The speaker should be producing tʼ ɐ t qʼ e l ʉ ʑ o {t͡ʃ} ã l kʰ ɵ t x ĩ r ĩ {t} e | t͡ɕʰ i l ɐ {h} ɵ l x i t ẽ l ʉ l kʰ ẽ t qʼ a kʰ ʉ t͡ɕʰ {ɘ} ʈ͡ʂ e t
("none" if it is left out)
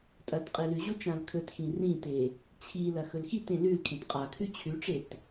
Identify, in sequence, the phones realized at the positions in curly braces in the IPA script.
t͡ʃ, t, x, ʉ

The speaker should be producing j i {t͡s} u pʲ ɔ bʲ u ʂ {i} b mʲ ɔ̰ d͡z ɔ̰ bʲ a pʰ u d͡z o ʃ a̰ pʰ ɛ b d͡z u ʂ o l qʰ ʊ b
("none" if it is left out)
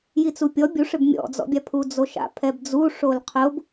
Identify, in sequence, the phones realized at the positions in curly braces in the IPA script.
t͡s, ɪ

